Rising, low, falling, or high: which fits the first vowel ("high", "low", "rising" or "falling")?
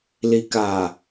low